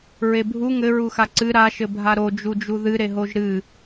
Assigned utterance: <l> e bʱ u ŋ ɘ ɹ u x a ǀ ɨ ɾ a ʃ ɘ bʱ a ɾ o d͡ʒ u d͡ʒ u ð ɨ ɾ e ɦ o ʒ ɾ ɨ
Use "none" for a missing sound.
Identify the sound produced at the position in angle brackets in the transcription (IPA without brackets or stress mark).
ɹ